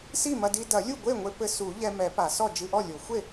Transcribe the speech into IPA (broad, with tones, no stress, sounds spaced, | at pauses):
s i˥˩ m ɐ˧ d i˧ d ɐ˨˩˦ lʲ u˥˩ ɡʷ e˥˩ ŋʷ e˧ p ɘ˧ s u˨˩˦ ʎ ɛ˧ m ɛ˨˩˦ p a˨˩˦ s ɔ˥˩ d͡ʒ ɨ˧ ʔ ɔ˥˩ lʲ o˨˩˦ xʷ e˥˩